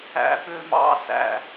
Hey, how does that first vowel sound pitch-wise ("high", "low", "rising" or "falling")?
low